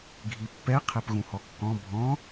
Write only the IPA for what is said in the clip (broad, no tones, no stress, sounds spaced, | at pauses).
ɡʱ i pː ɛ qʰ ɛ p ɣ ũ h ɔ kː ɔ̃ bʱ ɔ̃